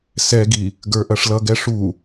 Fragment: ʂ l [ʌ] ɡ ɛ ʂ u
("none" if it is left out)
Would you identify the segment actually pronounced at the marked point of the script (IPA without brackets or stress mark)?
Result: ʌ